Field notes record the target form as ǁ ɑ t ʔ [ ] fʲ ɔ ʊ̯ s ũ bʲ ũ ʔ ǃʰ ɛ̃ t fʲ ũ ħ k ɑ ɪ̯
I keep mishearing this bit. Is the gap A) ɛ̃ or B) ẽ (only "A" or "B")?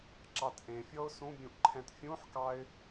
B